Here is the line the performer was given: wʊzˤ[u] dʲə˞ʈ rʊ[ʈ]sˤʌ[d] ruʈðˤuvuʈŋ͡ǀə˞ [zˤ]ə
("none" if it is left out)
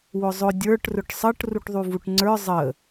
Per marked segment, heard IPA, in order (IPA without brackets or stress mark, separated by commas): ʊ, ʈ, ʈ, zˤ